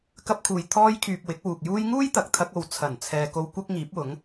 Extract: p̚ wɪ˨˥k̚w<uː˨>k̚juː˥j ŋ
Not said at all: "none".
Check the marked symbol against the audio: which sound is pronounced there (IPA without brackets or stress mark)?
uː˨